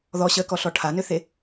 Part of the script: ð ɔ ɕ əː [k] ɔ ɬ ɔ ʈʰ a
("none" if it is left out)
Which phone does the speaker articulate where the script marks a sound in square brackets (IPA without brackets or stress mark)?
k